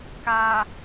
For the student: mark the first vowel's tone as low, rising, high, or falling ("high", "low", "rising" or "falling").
low